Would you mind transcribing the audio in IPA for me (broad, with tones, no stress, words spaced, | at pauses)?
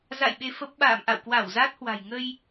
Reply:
za̰˧˨j ɓe˧fə˦˥p̚ ɓa̰ː˧˨mʔa̰˧˨wkwa˧˩w za˦˥t̚hwa̤˨˩j ŋə˧j